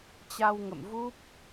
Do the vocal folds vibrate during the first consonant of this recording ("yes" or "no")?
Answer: no